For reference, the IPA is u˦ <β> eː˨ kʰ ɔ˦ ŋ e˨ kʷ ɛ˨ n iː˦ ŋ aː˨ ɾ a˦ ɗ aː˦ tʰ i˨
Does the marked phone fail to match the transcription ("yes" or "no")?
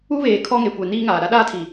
no